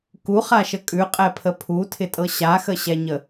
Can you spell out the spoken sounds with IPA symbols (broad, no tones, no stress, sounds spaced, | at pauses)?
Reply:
k u χ a ʃ ə kʼ ʉ qʼ ɛ pʰ ə pʰ u tʰ ɪ tʼ ɤ ɕ a x ə ɕ ɛ ɲ ə